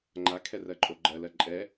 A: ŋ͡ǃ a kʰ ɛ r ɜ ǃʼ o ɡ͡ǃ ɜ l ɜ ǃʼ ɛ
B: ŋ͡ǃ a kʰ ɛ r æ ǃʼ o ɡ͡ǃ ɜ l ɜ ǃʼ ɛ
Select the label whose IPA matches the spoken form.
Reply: A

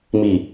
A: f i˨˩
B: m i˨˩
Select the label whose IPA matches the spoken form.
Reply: B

